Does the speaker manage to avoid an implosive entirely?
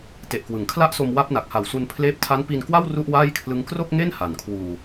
yes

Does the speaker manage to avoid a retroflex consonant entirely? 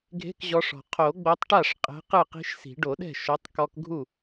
no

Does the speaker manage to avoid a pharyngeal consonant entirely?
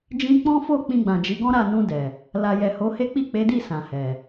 yes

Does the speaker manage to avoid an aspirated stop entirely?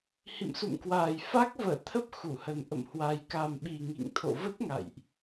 no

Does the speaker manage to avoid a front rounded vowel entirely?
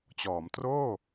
yes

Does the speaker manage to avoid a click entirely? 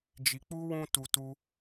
yes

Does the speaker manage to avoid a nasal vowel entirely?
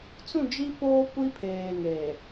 no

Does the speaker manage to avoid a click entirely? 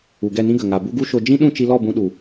yes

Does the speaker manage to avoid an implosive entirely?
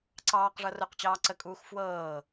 yes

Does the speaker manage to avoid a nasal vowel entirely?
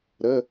yes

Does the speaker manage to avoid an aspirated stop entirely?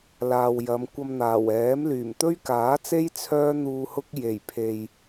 no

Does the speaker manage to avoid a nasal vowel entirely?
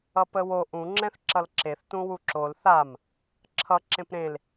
no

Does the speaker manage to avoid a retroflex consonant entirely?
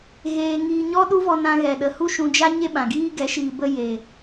yes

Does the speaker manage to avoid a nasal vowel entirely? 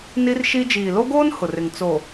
yes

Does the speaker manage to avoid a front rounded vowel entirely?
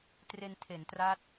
yes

